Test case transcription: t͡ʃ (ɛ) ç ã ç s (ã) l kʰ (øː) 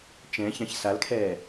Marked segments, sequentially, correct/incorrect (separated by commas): incorrect, incorrect, incorrect